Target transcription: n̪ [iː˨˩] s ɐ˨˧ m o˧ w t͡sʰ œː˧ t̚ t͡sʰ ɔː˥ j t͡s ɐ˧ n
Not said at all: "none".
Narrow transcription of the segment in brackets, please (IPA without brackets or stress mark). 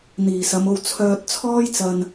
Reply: iː˨˩